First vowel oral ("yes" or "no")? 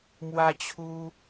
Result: yes